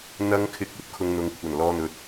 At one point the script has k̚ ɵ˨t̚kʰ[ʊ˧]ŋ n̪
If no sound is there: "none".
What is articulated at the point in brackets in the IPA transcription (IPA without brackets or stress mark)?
ʊ˧